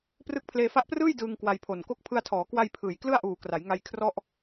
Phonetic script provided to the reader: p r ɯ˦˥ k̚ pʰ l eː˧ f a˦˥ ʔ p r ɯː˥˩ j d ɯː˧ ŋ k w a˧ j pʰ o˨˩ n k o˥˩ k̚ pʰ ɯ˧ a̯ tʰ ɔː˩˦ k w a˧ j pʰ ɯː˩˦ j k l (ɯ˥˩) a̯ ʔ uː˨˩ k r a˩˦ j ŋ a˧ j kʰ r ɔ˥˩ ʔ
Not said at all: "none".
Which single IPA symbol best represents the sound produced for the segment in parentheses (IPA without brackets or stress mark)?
ɯ˥˩